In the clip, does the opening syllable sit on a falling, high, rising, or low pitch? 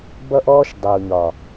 high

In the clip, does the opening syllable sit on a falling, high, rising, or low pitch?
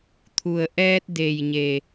low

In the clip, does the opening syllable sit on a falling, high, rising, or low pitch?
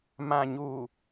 low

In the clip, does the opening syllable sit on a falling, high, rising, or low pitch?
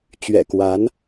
low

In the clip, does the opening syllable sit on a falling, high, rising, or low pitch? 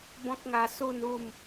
high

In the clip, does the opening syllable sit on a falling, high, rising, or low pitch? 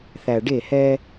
low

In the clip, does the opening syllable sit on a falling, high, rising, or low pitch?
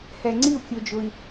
low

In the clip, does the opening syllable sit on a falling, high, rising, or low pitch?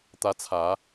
rising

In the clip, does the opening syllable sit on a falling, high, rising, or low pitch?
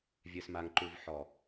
low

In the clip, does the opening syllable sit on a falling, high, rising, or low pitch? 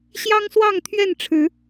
high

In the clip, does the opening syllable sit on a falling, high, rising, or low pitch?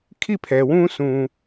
falling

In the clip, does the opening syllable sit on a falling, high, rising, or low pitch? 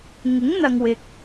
rising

